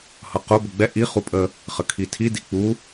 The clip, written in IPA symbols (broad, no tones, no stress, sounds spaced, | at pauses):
h ʌ q ʊ b ʊ ɡ͡b ɛ ʔ i χ u pʼ ə | χ ə kʰ i tʰ i d i k͡p u